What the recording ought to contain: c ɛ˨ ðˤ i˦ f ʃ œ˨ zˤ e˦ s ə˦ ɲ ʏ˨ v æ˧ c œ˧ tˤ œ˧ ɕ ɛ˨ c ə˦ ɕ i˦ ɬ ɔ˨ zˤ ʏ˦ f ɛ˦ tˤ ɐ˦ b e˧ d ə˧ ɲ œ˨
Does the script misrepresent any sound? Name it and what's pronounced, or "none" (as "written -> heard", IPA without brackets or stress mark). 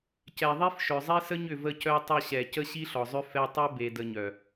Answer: æ˧ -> ə˧